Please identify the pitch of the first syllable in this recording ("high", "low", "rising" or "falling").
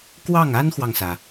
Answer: falling